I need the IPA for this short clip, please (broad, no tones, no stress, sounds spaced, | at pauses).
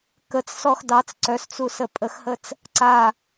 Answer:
k ə t͡s s ɔ x d ɑ t͡s ǀ œ s t͡s u s ə pʼ ə x h ə t͡s | ǀ a